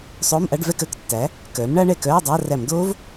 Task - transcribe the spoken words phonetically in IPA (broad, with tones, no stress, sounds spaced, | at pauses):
sˤ oː˧˥˧ m ʔ a˧˥˧ ɖ v ɛ˥˨ k œ˥˨ k tː æ˩˥ | k œː˩˥ m ɳ a˦˥ ɳ ɛ˧˩ k œː˧˥˧ dˤ a˧˥˧ r æ˧˩˧ m d oː˦˥ v